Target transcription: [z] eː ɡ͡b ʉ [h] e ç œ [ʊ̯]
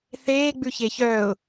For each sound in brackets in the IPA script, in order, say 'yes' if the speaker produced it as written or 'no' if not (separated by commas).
no, no, yes